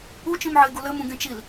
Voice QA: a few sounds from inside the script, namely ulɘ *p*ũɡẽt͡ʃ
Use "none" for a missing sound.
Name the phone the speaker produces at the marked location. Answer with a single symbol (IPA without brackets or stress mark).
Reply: m